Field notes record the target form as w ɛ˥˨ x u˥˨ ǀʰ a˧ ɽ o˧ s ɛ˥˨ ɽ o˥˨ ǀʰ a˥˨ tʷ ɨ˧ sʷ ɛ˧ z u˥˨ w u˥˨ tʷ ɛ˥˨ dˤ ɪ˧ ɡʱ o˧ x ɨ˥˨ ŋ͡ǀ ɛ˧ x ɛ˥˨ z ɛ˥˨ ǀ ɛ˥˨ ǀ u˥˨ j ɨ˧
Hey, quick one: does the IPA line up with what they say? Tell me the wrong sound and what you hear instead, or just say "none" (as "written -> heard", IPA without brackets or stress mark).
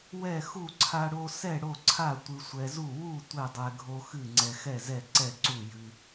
ɪ˧ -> ɛ˧